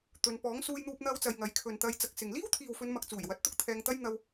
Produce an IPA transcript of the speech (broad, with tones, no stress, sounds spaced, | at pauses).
t̪ ɵ˨˧ n p ɔː˨˥ ŋ s uː˧ j n̪ uː˧ p̚ n̪ ɐ˧ w t͡s ɐ˨ j ŋ ɐ˨˧ j kʰ ɵ˨ n t̪ ɐ˧ j t͡s ɐ˧ k̚ s ɪ˨ ŋ l iː˥ w t̪ʰ iː˨ w f ɵ˨˧ n m ɐ˨ k̚ t͡s uː˨˩ j w ɐ˨˥ t̚ t̪ ʊ˥ k̚ t̪ʰ ɛː˧ ŋ t̪ ɐ˥ j n̪ ɐ˧ w